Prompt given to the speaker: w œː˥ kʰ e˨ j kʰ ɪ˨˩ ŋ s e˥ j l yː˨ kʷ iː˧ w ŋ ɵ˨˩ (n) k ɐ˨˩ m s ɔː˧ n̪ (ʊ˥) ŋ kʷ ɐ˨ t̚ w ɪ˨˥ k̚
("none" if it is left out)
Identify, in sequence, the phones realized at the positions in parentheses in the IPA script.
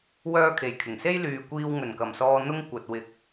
n, ʊ˥

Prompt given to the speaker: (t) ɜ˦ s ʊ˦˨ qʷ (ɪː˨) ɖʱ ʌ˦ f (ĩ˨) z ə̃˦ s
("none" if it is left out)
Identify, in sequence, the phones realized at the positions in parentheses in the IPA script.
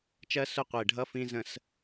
t͡ʃ, ɪː˨, ĩ˦

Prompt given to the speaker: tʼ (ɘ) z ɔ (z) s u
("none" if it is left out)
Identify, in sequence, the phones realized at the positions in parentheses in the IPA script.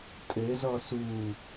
ɘ, none

